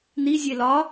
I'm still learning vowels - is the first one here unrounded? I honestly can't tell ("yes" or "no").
yes